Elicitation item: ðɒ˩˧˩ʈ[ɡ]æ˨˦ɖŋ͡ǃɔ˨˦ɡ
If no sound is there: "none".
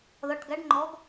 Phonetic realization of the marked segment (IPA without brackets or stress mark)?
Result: ɡ